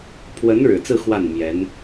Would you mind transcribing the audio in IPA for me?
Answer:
pʰ w ə˧˥ n ɻ ɻ̩˨˩ t͡s ɹ̩˥˧ x w a˥˩ n m j ɛ˧˥ n

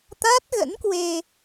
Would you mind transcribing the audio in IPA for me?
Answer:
t̪ a˦˥ t̚ ɣ ə̰˧˥ n k w e˧

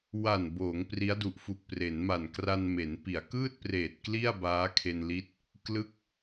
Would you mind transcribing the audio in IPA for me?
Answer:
w a˨˩ n b oː˩˦ ŋ p r i˦˥ a̯ d u˨˩ ʔ f u˨˩ k̚ p r e˩˦ n m a˨˩ n k r a˧ n m e˩˦ n p i˩˦ a̯ k ɯː˥˩ t̚ p r eː˨˩ t̚ k l i˥˩ a̯ b aː˦˥ kʰ e˧ n l i˦˥ t̚ | k l ɯ˦˥ k̚

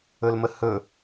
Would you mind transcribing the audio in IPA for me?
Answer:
ɵ l m ə h ɵ

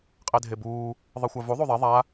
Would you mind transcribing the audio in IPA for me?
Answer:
qʼ e dʱ e b uː | ðˤ ɯ xʷ a v u ðˤ u ðˤ ɛ ðˤ a

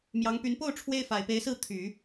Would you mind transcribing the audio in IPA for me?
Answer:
m j ɑ˧˥ ŋ p y˧˥ n p o˥˩ ʊ̯ ʈ͡ʂʰ w e˥ ɪ̯ f a˨˩ ɪ̯ p e˧˥ ɪ̯ s ɹ̩˥˩ t̪ʰ y˨˩˦

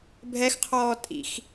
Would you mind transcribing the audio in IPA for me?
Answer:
bʱ ɛ x qʰ ɔː tʼ ḭ x

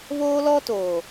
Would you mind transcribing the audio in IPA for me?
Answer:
β oː˦ l ɔ˦ t oː˨

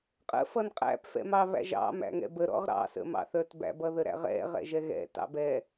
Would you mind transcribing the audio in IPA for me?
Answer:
qʼ ə̰ f ʌ n qʼ æ̰ p f ɛ̰ m ɑ β æ̰ ʒ ɑ̰ m æ̰ ŋ ɛ̰ b ə ɾ ɔ̰ ʁ ɾ ɑ̰ s ə̰ m ɑ̰ θ ə˞ t b æ̰ b ʌ ð ə ɾ æ̰ ʁ ɛ̰ ʁ ɛ̰ ʒ ɛ ɣ ɛ̰ t ɑ̰ b ɛ

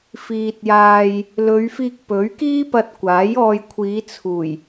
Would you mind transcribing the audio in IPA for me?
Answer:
f iː˨ t̚ j aː˧ j | l ɵ˨˧ ɥ f iː˧ k̚ p ɵ˨˥ ɥ k iː˥ p ɐ˧ t̚ kʷ aː˨˥ j ɔː˧ j kʷʰ iː˨˧ t͡sʰ uː˨˩ j

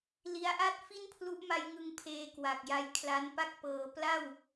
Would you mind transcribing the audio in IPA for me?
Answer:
l i˦˥ a̯ ʔ a˥˩ t̚ f i˥˩ n pʰ l u˦˥ ʔ m a˧ j ŋ ɯ˧ ŋ pʰ eː˧ k w a˨˩ k̚ j a˧ j kʰ l a˦˥ n p a˥˩ k̚ p ɤː˧ p l a˥˩ w

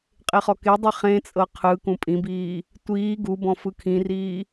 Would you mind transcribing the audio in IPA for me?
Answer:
qʼ e χ ɔ k e dˤ i χ ẽ t͡sʼ ɤ qʰ ɯ k ũ pʼ ĩ b iː | tʷ iː ɡ u b ɔ̃ f ɯ kʰ ĩ r iː

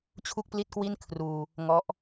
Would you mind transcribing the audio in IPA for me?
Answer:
t͡ɕʰ u˥˩ k̚ p l i˥˩ t̚ k w i˥˩ n kʰ r uː˧ | ŋ ɔ˦˥ ʔ

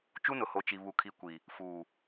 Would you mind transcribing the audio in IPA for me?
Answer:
t͡ʃ u˦ n ʊ˨ h o˨ t͡ʃ i˨ β u˨ kʰ i˨ kʷ i˨ | f uː˨

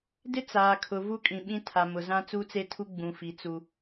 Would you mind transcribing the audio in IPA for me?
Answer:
d ɪ˦ t͡s aː˨ kʰ ʊ˨ v u˦ kʼ ĩ˨ ɓ ĩ˦ tʰ a˨ m ʊ˨ z ã˦ t͡s u˦ t͡s e˦ tʰ u˦ ɡ͡b ũ˨ f i˨ t͡s u˦

